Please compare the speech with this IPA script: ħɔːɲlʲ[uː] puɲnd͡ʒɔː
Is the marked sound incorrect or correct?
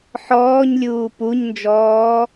correct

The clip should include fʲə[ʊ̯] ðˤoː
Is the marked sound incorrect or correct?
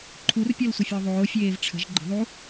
correct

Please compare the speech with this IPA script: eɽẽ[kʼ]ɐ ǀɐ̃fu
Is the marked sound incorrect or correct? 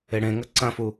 incorrect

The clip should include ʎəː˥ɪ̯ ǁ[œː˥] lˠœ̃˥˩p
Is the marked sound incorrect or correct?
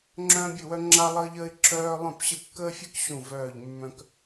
correct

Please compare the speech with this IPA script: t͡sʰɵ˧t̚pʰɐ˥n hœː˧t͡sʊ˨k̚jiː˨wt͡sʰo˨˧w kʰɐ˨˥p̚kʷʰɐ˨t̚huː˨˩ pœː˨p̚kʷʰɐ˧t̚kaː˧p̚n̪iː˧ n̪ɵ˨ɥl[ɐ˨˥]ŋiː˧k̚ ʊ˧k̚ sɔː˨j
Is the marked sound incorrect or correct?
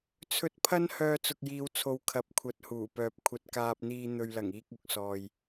incorrect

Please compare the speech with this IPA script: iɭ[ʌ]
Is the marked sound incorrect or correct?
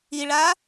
incorrect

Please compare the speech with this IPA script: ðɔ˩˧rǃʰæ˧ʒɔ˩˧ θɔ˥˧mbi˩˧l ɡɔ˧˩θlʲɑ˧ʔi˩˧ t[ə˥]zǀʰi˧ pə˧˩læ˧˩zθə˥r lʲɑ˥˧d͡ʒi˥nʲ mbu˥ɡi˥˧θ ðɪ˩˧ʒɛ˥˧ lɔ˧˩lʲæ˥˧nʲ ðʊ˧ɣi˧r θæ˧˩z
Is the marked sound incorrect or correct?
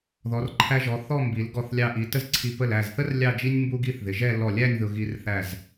correct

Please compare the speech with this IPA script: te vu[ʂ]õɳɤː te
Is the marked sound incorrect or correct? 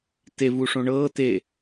correct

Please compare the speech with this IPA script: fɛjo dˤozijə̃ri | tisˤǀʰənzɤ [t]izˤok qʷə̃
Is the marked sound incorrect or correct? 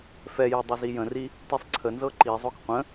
incorrect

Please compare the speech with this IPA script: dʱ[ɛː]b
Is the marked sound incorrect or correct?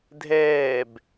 correct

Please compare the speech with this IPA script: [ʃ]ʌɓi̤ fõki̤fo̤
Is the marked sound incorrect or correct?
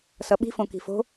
incorrect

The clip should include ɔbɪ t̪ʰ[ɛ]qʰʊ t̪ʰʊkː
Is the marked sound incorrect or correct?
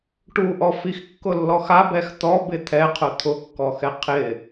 correct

